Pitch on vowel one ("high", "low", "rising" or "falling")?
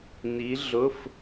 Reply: rising